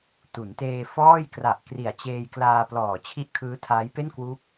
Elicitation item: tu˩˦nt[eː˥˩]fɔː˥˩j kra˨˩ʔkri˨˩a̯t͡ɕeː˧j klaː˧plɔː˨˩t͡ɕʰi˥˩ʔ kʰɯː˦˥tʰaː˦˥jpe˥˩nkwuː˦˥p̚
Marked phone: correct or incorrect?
incorrect